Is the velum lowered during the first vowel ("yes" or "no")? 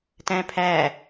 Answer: yes